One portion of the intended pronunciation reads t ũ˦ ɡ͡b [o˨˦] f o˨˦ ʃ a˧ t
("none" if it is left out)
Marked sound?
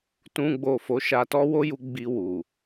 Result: o˦˨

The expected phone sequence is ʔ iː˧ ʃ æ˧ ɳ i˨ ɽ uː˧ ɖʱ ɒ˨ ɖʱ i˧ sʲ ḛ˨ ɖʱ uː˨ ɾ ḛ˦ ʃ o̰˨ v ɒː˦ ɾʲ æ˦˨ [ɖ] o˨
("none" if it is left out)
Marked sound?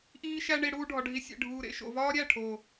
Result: ʈʰ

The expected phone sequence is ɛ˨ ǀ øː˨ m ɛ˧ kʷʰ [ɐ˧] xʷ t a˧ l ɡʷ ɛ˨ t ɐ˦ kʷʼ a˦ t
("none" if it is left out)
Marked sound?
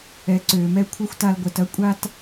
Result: ɐ˦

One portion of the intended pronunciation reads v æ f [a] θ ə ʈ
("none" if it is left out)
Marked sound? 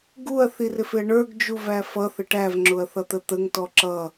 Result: ʌ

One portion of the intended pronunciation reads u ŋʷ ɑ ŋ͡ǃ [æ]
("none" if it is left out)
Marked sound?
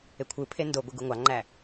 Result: æ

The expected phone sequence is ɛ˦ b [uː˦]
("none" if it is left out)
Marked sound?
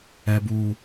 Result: uː˦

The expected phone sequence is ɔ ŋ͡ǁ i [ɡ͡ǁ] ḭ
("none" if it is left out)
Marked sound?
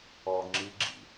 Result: ɡ͡ǁ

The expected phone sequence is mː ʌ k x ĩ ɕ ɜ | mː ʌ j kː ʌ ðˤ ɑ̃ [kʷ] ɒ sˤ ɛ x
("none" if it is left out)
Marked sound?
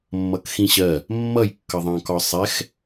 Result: k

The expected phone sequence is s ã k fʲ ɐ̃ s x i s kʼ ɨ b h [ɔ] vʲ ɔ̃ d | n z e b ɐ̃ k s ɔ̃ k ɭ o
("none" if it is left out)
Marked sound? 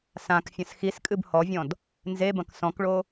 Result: ɔ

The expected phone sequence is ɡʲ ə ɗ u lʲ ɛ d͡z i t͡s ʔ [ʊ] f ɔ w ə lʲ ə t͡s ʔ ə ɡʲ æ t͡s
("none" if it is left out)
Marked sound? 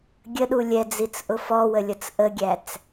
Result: ʊ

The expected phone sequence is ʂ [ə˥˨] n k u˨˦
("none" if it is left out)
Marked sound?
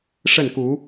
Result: ə˥˨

